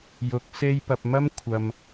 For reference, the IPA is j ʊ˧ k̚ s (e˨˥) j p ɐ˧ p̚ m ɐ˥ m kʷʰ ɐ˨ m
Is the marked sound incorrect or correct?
incorrect